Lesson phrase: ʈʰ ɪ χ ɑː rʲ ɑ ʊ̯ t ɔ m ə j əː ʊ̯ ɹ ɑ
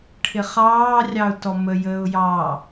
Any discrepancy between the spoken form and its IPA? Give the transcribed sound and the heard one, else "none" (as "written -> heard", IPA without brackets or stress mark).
ɹ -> j